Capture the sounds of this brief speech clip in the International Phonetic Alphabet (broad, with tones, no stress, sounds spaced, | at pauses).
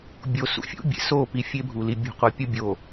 bʲ o˨ s ṵ˨˦ fʲ ṵ˦ bʲ ḛ˨ s o˦˨ p i˨ fʲ e˦ bʱ u˨ l i˨ bʲ ṳ˨ qʷ ʌ˨ pʲ o˦ bʲ o˨